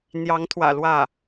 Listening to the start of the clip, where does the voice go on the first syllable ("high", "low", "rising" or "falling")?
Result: rising